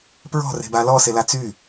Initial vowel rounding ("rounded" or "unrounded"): rounded